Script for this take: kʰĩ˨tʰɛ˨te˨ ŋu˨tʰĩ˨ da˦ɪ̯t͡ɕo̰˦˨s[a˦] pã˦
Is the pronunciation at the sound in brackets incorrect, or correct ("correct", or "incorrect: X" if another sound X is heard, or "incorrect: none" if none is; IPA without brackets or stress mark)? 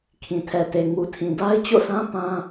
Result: incorrect: ã˦